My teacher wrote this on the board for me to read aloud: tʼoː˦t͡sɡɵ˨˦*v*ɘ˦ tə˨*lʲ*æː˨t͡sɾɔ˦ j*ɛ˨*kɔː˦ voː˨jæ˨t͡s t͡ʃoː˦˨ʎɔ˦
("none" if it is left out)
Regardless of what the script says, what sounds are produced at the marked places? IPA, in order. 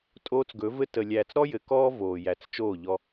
v, lʲ, ɘ˨

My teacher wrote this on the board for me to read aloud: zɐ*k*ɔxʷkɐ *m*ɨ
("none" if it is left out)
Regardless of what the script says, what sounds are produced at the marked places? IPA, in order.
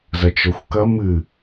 t͡ʃ, m

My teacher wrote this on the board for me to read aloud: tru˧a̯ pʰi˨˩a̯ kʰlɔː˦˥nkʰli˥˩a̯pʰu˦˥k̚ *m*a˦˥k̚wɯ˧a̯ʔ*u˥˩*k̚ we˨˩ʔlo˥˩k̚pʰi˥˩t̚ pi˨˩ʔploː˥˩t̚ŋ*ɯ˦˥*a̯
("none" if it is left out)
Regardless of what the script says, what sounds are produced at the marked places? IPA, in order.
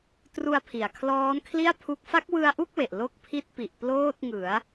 f, u˥˩, ɯ˩˦

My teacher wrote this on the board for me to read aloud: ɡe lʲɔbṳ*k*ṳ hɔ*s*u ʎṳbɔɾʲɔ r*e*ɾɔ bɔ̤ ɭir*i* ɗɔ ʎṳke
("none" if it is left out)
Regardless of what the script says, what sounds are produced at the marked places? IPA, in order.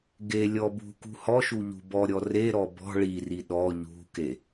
k, ʃ, e, i

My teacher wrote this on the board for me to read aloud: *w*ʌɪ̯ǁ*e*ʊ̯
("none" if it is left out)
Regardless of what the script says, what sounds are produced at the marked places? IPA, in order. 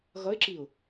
ɣ, i

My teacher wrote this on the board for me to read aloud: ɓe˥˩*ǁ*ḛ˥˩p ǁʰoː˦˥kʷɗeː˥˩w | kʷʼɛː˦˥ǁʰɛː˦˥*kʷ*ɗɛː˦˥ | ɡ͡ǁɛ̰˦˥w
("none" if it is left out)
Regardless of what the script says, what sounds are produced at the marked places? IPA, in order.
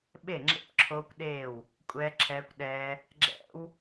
ŋ͡ǁ, kʷ

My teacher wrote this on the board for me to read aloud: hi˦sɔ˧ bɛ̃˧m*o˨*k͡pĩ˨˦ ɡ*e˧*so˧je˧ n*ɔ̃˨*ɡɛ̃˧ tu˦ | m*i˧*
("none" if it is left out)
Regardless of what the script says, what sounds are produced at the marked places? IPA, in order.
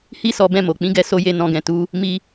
o˨, ɛ˧, ɔ̃˧, i˧

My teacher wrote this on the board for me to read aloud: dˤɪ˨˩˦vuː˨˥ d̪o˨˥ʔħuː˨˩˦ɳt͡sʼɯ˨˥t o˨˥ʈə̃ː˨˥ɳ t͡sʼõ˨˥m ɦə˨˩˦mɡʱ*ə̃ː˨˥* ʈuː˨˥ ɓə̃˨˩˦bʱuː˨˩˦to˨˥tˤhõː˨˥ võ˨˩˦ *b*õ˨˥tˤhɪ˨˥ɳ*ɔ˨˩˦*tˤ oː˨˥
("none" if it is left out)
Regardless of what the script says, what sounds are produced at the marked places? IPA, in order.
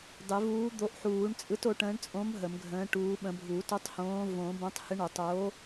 ə̃ː˨˥, b, o˨˩˦

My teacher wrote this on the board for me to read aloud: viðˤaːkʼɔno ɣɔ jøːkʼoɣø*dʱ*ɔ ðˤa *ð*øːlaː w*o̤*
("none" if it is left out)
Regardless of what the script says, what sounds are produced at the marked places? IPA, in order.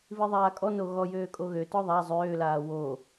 t, zˤ, o

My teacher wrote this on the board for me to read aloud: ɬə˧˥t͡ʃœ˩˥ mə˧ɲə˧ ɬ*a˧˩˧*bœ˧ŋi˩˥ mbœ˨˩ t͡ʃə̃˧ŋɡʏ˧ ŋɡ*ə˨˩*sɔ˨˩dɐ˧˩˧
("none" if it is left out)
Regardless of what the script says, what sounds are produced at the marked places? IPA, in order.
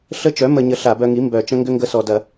a˧˩˧, ə˧

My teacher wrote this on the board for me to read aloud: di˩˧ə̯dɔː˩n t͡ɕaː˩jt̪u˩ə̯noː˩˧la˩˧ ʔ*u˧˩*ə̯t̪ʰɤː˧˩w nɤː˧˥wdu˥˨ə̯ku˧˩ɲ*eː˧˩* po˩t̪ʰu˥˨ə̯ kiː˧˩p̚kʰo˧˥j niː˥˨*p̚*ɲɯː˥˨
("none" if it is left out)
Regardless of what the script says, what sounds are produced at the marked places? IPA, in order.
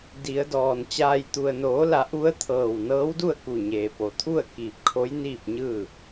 u˧˥, eː˩, p̚

